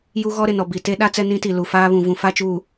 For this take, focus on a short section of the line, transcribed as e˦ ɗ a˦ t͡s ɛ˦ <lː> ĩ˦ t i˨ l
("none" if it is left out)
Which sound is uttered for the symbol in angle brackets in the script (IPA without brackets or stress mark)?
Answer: n